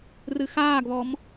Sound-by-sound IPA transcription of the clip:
r ɨ x aː ɡ β ɔ m

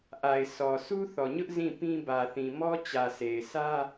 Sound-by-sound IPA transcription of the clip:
ʔ a˨ ɪ̯ s ɔ˨ s u˦ θ ɔ˨ ɲ ʊ˦ ʔ z ĩ˦˨ p ĩ˦ b ä˨ θ ĩ˨ m ɔ˦ t͡ɕ ä˨ sʰ e˨ ɪ̯ s ä˦

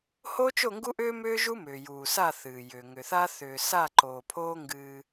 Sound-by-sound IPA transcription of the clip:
h oː˦ t͡ʃ o˦˨ ŋ ɡ u˦ ʔ ʏː˦ m ʏː˦ ʒ u˦ m ʏː˨ j uː˨ s a˦˨ θ ɨː˨ j ʏː˨ ŋ ʏ˨ θ a˦ θ ʏː˨ s a˦˨ ǃ oː˨ pʰ oː˦ ŋ ɡ ɨː˦

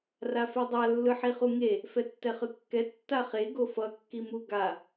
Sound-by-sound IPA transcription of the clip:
r a f e dˤ a lː ɯ ħ i χ u ŋ e | f ɛ tː ɛ χ ɯ kː ɛ tː a χ e ɡ o f ʌ kː i m u ɡ a

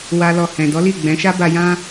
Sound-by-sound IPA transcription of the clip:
w a˦ l ɔ˧ h ɛ̃˨ d ɔ˨˦ l i˦˨ ɡ͡b ɛ̃˨˦ ʃ a˦ b a˧ j ã˦

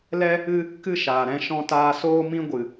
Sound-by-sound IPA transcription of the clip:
l ɛ˦ | ɨ˦ | k ɨ˦ ʃ aː˨ ɾ ɛ̃˧ ʃ ɔ̃˧ t aː˧ s oː˦ m ĩ˦ ɡʷ ɨ˨

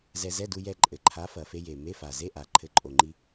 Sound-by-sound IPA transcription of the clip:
z ɛ˧ z ɛ˧˥˧ d u˧ j ɛ˧ ǃʼ ɘ˨˩ ǃʰ a˨˥ f ɐ˨˩ f e˧ j e˨˩ m e˧˥˧ f a˨˩ z e˧˥˧ ʔ a˨˩ ǃʰ ɘ˨˥ ǃʼ o˨˩ ŋ͡ǃ i˧

